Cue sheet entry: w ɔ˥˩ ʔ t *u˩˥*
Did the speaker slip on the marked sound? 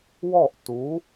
no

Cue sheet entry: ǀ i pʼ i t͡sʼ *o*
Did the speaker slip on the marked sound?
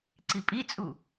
yes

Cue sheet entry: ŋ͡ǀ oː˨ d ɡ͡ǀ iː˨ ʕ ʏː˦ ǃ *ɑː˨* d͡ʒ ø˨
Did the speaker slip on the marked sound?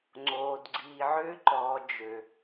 yes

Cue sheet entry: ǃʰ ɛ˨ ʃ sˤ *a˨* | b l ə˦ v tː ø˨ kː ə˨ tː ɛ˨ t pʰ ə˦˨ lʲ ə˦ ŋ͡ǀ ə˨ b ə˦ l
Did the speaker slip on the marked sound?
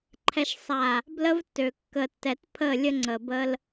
no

